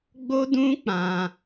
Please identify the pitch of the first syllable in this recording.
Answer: high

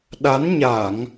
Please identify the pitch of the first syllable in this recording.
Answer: rising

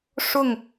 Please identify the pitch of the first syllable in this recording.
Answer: falling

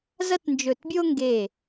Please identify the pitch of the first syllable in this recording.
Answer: high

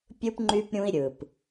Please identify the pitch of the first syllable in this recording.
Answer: high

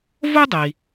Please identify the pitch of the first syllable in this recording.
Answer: high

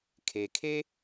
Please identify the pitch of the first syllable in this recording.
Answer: low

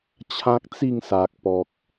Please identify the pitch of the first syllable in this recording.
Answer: high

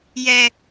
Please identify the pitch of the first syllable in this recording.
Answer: high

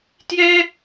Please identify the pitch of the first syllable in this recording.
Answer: high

